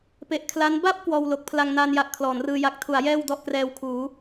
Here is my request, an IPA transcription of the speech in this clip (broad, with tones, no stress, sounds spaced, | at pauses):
p e˨˩ ʔ kʰ l a˦˥ n b a˥˩ p̚ k w ɔː˧ w l o˨˩ k̚ pʰ l a˧ ŋ n aː˧ n j a˨˩ ʔ kʰ l ɔː˩˦ n r ɯː˧ j a˨˩ k̚ tʰ u˩˦ a̯ j ɛː˥˩ w d ɔ˥˩ ʔ k r ɛː˧ w kʰ uː˩˦